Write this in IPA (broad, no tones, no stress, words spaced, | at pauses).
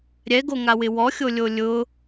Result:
ɾʲɛɡoŋawɪ wɔxʲolʲo lʲʊ